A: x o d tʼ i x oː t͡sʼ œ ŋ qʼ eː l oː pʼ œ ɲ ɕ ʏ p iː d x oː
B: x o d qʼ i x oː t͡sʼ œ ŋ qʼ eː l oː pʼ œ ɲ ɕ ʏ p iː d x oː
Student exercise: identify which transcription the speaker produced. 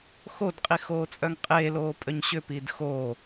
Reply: B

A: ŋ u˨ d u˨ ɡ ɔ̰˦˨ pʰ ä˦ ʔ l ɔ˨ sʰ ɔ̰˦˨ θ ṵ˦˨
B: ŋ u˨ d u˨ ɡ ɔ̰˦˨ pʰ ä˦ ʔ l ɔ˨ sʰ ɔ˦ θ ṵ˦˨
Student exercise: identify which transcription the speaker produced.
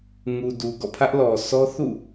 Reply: B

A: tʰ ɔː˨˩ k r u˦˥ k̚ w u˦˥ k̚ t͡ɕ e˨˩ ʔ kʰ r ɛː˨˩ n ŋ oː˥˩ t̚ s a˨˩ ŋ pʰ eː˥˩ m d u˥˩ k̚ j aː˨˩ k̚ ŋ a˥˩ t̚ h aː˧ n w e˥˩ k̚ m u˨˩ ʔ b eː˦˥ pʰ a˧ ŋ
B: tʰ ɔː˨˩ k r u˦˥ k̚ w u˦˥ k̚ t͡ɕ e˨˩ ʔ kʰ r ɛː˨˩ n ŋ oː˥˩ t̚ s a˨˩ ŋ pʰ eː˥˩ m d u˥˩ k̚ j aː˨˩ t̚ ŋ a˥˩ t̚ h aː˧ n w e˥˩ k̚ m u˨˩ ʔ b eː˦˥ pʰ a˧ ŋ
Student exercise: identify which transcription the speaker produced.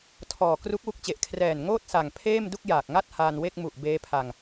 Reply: A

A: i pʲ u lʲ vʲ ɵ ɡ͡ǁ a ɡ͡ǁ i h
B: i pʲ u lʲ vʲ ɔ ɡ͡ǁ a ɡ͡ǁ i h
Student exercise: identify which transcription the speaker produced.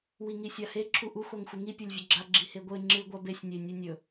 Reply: A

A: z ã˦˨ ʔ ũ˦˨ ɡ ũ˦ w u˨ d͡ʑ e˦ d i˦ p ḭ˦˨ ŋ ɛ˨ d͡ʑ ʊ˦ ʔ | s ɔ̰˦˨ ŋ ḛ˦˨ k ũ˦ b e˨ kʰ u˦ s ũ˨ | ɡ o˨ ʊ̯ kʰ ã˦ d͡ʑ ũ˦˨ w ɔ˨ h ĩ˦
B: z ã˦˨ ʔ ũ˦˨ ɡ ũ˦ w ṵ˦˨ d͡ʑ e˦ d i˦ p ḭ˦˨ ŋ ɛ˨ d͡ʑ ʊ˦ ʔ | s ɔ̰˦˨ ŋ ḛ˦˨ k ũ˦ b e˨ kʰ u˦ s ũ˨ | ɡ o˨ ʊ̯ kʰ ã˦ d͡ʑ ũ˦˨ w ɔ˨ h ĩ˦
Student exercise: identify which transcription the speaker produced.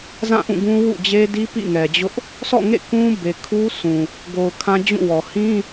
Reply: B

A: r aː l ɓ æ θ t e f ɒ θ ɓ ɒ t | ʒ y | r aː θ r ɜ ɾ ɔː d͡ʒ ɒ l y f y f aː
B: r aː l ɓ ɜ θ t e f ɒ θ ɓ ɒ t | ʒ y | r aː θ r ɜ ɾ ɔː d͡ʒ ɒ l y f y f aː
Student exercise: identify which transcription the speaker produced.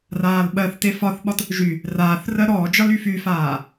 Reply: B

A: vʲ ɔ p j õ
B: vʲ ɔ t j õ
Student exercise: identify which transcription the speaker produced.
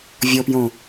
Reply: A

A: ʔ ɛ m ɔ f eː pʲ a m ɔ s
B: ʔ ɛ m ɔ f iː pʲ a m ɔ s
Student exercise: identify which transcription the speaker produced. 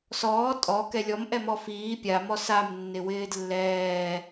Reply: B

